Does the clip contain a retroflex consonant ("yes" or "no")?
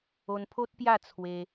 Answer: no